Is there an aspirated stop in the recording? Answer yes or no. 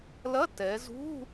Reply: no